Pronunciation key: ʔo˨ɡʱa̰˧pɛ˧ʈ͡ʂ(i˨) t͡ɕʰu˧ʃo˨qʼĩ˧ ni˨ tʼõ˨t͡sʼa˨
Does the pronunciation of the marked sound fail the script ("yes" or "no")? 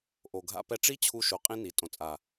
yes